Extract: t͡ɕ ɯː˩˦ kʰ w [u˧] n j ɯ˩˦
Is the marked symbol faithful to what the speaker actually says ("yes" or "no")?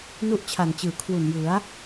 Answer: no